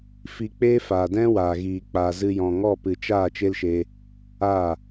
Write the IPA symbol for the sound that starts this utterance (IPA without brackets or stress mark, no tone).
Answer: f